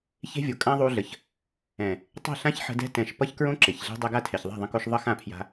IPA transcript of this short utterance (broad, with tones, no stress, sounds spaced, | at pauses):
ç e̤˦ vʲ o˨ kʼ ã˦ ðˤ u˧ ɮ ə˨ ç | ɛ̃˨ | tˤ e̤˦˨ ɬ ã˦ ç ħ ə̤˧ d ɛ̤˧ t ɛ̃˨ ʃ p ʌ˦ ç k ɹ õ˦ ǁ e˨ ç ɮ e̤˦ dˤ ɛ˧ ɡ a˦˨ tʰ e˨ ç ðˤ a̤˦˨ ðˤ ə̃˧ k o˧ ʃ ðˤ ʌ˦ x ã˦˨ pʰ j a̤˧